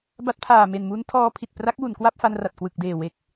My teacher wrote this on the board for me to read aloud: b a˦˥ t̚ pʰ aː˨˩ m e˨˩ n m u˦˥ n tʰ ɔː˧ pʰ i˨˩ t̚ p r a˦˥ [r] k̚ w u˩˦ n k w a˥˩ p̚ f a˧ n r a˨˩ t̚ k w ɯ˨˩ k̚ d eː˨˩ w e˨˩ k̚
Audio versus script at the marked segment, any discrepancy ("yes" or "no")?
yes